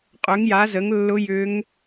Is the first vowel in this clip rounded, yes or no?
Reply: yes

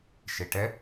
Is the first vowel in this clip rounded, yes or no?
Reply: no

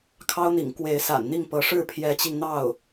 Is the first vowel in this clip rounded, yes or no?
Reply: no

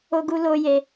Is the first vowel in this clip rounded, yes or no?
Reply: yes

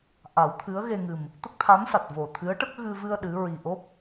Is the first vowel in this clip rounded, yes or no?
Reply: no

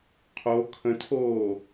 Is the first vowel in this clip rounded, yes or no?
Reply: yes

